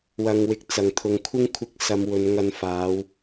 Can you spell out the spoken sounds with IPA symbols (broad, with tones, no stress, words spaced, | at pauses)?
wɐ˨ŋwɪ˨˥k̚t͡sɐ˨˩ŋt̪ʰʊ˨ŋ kʷʰɪ˥ŋkʷʰɪ˧k̚sɐ˨˧mwɵ˨˧n ŋɐ˧n faː˨˧w